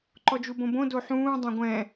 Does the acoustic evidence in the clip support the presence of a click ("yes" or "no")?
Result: yes